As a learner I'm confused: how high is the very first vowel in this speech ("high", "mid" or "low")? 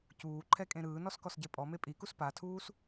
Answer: high